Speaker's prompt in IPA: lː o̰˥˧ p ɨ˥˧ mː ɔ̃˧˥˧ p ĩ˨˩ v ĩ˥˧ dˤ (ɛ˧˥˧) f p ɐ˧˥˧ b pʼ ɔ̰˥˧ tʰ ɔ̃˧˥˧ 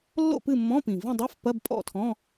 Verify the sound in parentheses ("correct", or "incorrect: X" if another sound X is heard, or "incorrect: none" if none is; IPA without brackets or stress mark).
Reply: correct